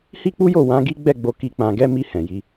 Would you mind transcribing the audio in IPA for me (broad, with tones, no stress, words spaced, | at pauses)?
hi˦k͡pu˦jo˦˨ wã˨˦ɡi˦ɡ͡bɛ˦˨ɡ͡bo˧ ki˧k͡pã˧ɡɛ˦ mi˧hɛ̃˨ ji˨˦